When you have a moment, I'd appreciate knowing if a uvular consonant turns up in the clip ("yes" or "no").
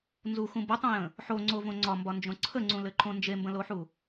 no